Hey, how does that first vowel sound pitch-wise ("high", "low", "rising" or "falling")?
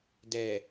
low